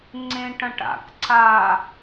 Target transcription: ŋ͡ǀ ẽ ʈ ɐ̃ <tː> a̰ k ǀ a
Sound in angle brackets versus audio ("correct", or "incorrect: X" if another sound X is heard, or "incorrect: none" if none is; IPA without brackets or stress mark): incorrect: ʈ